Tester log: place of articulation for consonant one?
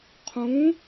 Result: uvular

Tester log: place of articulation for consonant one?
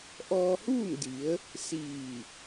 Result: glottal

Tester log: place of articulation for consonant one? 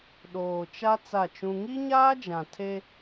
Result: alveolar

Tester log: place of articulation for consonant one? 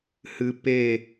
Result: glottal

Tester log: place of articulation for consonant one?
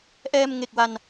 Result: glottal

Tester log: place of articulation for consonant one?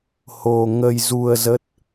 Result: glottal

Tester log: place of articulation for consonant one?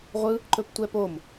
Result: uvular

